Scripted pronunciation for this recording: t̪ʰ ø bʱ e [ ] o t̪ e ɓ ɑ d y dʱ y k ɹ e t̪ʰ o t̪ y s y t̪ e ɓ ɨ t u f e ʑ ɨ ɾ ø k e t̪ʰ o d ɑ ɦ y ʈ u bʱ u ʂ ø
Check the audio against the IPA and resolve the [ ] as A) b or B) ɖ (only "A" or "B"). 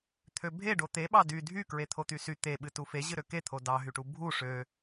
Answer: B